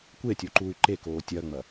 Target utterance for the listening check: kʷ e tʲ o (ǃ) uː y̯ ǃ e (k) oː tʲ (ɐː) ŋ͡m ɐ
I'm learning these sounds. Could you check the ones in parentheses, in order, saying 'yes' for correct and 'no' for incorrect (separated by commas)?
yes, yes, yes